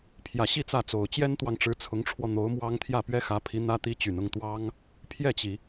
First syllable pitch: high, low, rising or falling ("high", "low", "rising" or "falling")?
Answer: low